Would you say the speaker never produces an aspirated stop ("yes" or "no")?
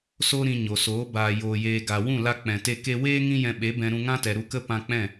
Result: yes